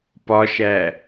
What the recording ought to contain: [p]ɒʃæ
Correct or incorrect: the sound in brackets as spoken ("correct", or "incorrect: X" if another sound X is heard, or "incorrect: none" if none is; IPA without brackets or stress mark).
correct